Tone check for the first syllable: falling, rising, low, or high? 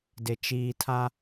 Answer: low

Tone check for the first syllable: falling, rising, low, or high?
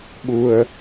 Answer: low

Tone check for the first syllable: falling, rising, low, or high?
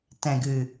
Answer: low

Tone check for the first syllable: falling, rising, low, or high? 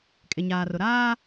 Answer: low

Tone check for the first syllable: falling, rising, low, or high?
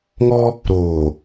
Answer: high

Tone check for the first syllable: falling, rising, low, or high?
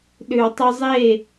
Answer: low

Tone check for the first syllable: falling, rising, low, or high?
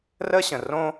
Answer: high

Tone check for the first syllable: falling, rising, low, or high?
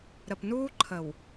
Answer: low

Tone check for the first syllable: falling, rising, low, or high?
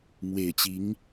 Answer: low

